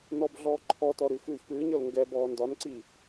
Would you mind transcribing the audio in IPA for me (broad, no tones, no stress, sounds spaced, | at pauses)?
n ɔ b ɮ ɔː ǃʰ ɔ t ɔ ɾ ʉ x ʉː ç p ɨː ɲ ɤ l ŋ ɡ ɛ b ɔː n d ɒ n ǀ i